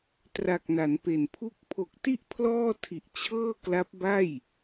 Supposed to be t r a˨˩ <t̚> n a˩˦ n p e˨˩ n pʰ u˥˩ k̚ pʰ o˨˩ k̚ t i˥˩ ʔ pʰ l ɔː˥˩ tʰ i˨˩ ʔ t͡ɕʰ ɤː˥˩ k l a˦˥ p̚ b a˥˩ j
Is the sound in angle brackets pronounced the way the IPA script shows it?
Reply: no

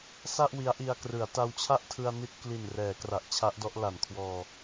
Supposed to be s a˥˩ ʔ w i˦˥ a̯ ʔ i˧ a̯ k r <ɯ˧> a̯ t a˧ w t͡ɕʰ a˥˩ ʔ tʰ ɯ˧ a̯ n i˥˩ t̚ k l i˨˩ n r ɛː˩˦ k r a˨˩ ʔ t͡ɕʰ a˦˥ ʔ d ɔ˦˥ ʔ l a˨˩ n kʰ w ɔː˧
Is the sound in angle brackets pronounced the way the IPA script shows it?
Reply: no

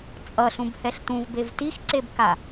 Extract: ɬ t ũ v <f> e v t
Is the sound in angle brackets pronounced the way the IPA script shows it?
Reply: no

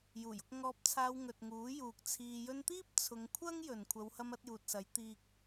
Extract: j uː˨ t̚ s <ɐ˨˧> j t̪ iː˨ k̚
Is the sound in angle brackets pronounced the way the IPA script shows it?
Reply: yes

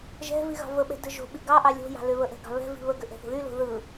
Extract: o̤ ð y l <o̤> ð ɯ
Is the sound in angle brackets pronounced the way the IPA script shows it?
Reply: yes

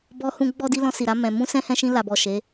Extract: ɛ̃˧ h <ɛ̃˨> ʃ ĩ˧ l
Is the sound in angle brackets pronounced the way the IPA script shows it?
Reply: no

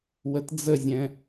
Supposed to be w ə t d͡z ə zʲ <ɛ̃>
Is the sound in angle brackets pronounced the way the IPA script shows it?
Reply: yes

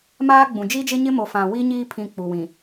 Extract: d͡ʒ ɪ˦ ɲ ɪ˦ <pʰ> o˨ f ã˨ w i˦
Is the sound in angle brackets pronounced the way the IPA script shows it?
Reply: no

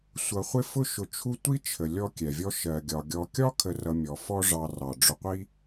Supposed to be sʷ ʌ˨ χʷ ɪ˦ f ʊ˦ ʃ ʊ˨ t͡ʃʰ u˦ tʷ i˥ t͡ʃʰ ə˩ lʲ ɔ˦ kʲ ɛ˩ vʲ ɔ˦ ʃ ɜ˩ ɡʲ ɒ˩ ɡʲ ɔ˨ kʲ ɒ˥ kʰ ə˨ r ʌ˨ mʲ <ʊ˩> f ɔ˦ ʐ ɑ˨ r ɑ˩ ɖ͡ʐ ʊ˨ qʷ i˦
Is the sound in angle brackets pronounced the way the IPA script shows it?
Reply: no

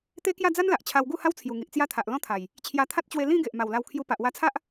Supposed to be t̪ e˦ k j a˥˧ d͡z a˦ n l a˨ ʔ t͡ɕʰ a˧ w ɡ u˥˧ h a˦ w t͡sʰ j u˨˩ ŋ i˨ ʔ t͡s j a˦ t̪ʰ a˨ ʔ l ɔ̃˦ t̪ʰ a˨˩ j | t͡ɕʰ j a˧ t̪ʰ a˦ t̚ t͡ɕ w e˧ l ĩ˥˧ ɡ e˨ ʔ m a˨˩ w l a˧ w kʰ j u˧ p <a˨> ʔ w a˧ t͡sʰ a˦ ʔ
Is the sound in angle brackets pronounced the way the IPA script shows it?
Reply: yes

